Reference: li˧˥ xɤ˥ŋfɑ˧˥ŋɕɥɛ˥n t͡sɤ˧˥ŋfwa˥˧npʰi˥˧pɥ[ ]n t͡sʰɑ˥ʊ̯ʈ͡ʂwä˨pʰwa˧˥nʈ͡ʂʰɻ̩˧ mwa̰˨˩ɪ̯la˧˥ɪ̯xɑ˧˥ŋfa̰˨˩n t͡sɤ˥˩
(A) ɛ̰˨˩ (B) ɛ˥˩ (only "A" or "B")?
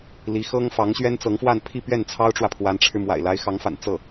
B